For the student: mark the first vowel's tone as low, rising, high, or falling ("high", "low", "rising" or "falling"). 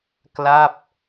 falling